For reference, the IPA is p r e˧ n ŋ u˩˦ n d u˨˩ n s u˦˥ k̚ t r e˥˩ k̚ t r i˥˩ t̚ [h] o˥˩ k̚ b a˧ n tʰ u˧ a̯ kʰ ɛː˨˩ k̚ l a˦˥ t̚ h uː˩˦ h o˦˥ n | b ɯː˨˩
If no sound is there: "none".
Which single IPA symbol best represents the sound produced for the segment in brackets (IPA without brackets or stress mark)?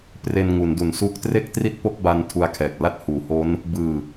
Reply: p